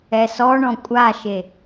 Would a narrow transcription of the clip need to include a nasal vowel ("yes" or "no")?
yes